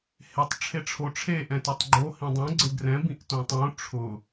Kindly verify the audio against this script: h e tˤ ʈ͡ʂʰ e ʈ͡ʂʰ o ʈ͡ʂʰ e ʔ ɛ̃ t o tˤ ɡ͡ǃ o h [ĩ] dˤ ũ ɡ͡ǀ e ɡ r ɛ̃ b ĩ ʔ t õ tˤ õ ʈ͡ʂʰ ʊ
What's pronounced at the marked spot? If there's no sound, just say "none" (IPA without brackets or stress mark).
ĩ